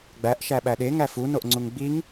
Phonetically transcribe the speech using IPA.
ɡ͡b æ ʔ ʃ æ ɓ æ ɗ e ŋ æ f u n o ʔ ŋ͡ǀ u ŋ ɡ͡b i ŋ

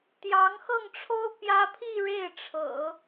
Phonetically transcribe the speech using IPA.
t̪ j ɑ˧˥ ŋ x ɤ˥˩ ŋ ʈ͡ʂʰ o˥ ʊ̯ p j ä˥ pʰ i˥˧ ɻ e˥˩ ɪ̯ ʈ͡ʂʰ ɤ̰˨˩˦

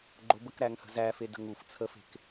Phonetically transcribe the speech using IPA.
ɡ͡ǃ o b ə k ɾ æ ŋ h ə̤ z æ f e d ə̤ ŋ u f t͡sʰ ə f e̤ k

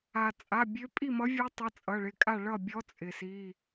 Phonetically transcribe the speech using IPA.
a˩ t͡sʼ a˩˧˩ bʲ ø˧˥ pʼ i˥˨ m ʌ˧˥ vʲ ø˧˥ tˤ ʌ˩˧˩ t͡sʼ ʌ˩˧˩ ɭ ɪ˩˧˩ kʼ a˥˨ ɭ ʌ˥˨ bʲ ɔ˧˥ t͡sʼ ɪ˩ s i˩˧˩

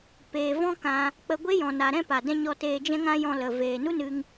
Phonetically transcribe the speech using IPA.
p eː˨ v ɔ̃˦ k ã˧ | k͡p ə˧ ɡʷ e˦ j ɔ̃˨ n a˨ ɾ ɛ̃˦ p a˨ d ɛ̃˦ ɲ ɔ˧ t eː˧ d͡ʒ ɛ̃˦ ŋ ã˦ j ɔ̃˧ l ə˨ v eː˨ n u˦ n ɨ˧ ŋ

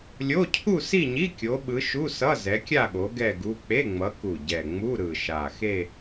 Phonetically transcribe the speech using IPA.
lʲ o˧˥˧ cʰ u˥˧ s i˥˧ ɲ i˧˥˧ kʲ o˨˦ ɓ ɯ˨˦ ʃ u˧˥˧ s ʌ˧˥˧ z ɛ˨˦ kʲ a˥˧ ɠ o˨˦ ɡ ɛ˥˧ ɡ u˧˥˧ k͡p e˧˥˧ ŋ͡m ʌ˨˦ k u˨˩ ɟ ɛ˨˩ ŋ͡m u˧˥˧ ɾ ɯ˨˩ ʃ a˨˩ x e˥˧

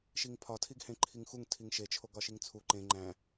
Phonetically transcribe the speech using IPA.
ʃ i ŋ pʰ ɒ tʰ i ɡ h ẽ ǃʰ i ŋ x u ŋ tʰ i ŋ ʃ e t͡ʃʰ o ɡ ɒ ʃ i ŋ t͡sʰ u ǃ ẽ ŋ͡ǃ æ̃

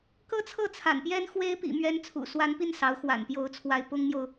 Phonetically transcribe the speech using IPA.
k ɤ˥ t͡sʰ ɤ˥˩ t͡sʰ a̰˨˩ n p j ɛ˥ n x w e˥ ɪ̯ p ḭ˨˩ m ɥ ɛ˧˥ n t͡sʰ ṵ˨˩ s w a˧˥ n p i˥˩ n s ɑ˧˥ ʊ̯ x w a̰˨˩ n p j o˧˥ ʊ̯ t͡sʰ w a˧˥ ɪ̯ p ʊ˥ ŋ m j o˨ ʊ̯

